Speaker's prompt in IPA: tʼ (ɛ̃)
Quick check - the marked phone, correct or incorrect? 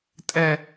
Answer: incorrect